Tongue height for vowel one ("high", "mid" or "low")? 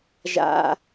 low